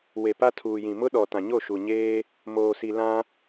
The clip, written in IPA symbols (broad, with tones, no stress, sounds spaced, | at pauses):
w e˨ p a˦ tʰ uː˨ j ĩ˨ m ʊ˦ ɗ ɔ˨ t ã˨ ɲ o˦˨ ʃ u˨ ɲ eː˦ | m oː˨ s i˨ l ã˦